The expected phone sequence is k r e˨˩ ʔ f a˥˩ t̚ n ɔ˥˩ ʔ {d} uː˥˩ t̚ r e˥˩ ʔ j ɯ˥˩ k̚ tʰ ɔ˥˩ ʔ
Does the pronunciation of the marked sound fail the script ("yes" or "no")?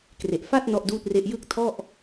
no